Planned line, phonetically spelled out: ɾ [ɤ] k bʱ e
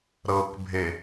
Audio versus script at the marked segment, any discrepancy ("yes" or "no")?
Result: no